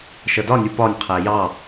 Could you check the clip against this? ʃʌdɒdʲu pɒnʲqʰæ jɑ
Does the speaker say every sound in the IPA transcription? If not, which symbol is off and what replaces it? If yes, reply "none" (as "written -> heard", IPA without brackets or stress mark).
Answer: dʲ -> nʲ